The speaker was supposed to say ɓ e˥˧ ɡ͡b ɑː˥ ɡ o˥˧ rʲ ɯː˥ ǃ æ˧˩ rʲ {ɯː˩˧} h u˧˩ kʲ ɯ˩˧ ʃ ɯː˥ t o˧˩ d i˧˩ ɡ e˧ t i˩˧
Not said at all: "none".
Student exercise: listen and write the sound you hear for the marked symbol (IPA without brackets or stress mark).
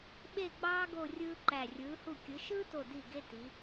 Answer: ɯː˩˧